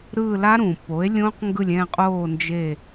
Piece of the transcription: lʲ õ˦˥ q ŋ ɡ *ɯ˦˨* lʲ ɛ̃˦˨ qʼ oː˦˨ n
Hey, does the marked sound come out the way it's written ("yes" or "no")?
yes